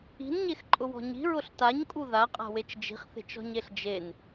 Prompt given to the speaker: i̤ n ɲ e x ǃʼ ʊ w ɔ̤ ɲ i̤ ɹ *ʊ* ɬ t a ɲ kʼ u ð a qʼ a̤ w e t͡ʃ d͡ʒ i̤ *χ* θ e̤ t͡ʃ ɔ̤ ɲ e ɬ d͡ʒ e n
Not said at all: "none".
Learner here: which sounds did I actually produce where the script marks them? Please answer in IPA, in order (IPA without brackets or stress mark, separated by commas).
ʊ, χ